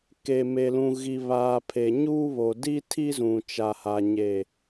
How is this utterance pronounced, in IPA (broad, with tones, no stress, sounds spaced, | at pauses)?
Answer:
k e˨ m e˨ l ũ˨ ɣ i˨ β aː˨ pʰ e˨ ɲ uː˦ β o˨ d i˦ tʰ i˦ z ũ˨ t͡ʃ a˨ h a˨ ɲ e˨